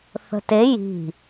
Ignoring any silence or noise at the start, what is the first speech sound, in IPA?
θ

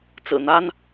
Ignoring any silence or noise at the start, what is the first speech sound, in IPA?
t͡s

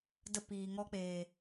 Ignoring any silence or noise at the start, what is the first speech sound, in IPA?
d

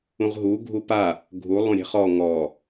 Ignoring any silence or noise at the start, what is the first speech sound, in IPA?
ũ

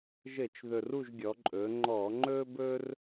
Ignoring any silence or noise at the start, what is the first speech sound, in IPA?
ʒ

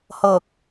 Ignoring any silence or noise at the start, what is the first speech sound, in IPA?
h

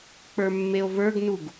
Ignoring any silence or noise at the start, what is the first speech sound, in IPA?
k͡p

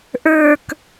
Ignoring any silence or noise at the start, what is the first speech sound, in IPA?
ʔ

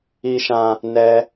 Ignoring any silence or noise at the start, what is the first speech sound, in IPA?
i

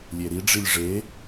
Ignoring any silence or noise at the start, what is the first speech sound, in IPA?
lʲ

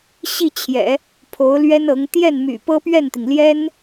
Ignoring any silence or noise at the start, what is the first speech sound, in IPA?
ɕ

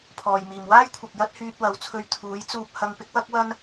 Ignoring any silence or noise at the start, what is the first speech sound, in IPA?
pʰ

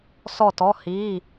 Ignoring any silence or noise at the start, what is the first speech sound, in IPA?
s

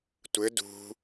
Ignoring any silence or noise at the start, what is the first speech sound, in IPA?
tʷ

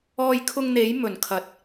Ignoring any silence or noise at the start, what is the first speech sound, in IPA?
ɔː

